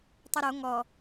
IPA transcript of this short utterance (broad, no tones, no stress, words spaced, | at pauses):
tˤuɾo ŋɔ